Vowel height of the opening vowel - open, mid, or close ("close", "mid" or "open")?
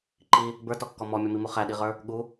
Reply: close